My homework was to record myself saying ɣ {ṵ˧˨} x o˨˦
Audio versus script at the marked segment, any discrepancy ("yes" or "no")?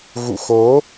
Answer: no